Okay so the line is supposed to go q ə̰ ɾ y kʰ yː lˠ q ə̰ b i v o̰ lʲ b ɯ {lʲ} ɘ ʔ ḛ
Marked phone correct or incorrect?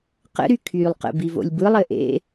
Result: incorrect